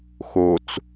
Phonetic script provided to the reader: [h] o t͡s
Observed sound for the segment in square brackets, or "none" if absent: x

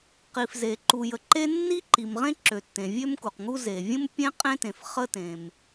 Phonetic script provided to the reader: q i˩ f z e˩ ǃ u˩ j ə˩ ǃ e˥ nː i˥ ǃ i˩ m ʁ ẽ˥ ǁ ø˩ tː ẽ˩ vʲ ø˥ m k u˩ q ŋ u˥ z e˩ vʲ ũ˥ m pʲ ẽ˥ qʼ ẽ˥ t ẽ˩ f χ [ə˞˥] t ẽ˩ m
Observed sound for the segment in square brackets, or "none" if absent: ə˥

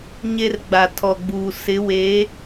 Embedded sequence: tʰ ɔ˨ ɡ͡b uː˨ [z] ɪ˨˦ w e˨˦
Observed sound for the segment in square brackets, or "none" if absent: s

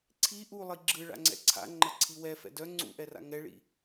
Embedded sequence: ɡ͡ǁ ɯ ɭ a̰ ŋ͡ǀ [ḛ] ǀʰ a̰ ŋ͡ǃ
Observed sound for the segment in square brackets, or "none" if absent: ɛ̰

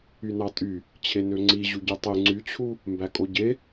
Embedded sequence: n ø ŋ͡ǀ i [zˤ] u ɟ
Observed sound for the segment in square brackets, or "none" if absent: ʑ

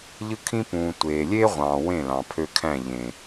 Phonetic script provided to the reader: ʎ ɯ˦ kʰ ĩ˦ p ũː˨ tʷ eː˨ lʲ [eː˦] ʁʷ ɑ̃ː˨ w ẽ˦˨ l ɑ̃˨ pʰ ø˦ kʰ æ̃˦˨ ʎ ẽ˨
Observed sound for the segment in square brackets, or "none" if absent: eː˦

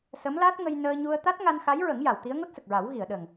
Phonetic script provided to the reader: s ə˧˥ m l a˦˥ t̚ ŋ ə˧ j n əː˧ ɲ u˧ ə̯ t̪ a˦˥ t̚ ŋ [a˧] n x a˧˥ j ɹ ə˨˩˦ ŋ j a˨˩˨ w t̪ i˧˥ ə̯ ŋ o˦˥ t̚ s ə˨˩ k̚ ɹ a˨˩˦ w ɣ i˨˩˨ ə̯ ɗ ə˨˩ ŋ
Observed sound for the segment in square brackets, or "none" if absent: a˧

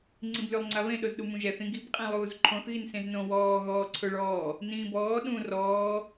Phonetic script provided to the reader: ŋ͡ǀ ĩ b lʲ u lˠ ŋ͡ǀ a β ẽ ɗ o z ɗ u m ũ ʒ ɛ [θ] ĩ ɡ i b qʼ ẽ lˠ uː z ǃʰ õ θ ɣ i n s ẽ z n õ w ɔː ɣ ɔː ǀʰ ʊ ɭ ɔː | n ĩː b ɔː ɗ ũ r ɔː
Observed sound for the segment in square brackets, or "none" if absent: θ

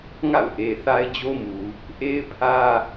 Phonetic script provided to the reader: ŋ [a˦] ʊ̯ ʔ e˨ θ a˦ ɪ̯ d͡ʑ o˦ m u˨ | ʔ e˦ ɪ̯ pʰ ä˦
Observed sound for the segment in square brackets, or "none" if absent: a̰˦˨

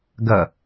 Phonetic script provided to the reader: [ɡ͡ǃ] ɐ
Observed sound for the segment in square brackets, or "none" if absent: ɡ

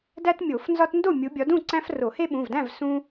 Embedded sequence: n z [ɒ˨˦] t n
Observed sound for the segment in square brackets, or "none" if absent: ɒ˦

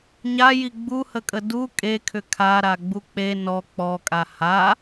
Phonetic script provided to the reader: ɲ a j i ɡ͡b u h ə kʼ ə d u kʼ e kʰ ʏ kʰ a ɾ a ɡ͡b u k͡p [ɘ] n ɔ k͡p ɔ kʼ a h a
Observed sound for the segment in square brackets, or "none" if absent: e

